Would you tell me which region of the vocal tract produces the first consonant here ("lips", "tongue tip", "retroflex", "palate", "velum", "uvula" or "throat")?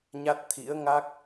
palate